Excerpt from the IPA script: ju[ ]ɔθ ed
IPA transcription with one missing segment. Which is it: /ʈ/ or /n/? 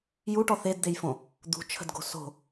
ʈ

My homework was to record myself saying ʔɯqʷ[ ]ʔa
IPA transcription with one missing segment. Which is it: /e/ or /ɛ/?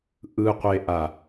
e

